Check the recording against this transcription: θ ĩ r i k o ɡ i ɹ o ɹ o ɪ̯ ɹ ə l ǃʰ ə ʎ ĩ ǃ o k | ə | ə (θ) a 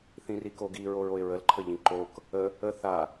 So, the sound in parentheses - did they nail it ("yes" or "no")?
yes